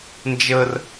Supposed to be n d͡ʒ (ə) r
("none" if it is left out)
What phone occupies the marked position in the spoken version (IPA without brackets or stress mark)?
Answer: ə